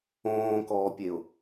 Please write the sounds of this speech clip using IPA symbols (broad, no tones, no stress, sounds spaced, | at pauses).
õː k ɔː pʲ e ʊ̯